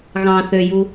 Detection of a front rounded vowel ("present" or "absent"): present